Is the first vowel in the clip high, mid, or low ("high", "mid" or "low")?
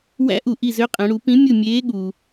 low